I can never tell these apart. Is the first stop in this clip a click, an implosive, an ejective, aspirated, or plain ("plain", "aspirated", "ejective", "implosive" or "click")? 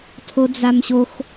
aspirated